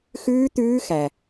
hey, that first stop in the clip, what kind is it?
plain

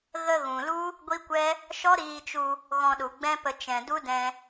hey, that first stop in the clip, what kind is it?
plain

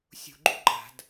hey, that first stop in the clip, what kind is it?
click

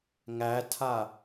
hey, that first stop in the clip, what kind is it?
aspirated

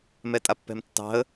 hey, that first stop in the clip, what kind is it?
ejective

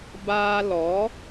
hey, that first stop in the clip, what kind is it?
plain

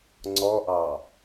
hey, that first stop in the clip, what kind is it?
click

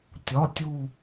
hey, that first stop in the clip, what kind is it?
plain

